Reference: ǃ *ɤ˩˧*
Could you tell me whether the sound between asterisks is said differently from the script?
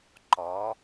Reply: yes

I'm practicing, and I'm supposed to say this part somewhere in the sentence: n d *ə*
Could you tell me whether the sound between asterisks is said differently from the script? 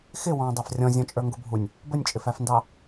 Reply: yes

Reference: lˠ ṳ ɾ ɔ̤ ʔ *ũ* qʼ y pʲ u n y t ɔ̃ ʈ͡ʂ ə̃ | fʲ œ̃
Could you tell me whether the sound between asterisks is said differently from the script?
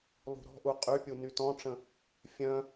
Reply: yes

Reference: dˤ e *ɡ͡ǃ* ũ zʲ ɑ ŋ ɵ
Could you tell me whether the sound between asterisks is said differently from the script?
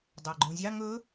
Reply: no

